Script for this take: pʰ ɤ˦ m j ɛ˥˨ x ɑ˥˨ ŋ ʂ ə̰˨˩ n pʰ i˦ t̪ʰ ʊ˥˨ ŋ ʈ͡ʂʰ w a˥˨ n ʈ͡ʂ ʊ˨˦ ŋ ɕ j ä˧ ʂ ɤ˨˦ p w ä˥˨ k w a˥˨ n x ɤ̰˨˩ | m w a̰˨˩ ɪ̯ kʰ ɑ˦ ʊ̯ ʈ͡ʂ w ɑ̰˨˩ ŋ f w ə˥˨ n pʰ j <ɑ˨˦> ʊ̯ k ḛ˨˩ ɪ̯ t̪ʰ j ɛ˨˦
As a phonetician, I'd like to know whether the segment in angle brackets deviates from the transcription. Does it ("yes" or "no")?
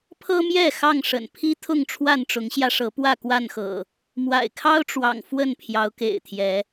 no